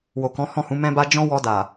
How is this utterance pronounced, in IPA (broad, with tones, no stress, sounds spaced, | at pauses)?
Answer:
w o˨ k ɔ̃˨˦ h ɔ̃˦˨ h ũ˨˦ m ɛ̃˦ b a˦ d͡ʒ ɔ̃˦ w ɔ˧ d a˨